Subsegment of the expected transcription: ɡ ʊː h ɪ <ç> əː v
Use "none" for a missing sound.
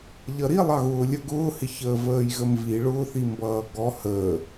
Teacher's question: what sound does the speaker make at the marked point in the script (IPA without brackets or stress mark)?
ç